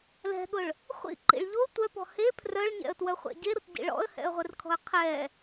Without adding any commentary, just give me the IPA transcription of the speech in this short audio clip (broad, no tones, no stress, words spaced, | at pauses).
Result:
lɛ̤ɠʊɭ | χʷḭǃḭɭ ʎo tʷœpɔ̤ he pʰrœɭɲɛ̰ə̯twœχʷɛ̰ ɟeɾʊtɟḭ ɭɔ̰ə̯hɛ̰ə̯ʁʷerkʰɔ̤ə̯ qʰɛ